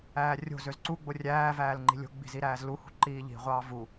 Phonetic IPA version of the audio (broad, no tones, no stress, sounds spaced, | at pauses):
æː rʲ o̤ z ø z ǀ u ɡ͡b o rʲ æː v æː l ŋ͡ǃ i̤ lʲ o̤ ɡ͡b i̤ z i ɾ æː z l u h ṳ ǃ iː ʎ i̤ ʁʷ ɑː v u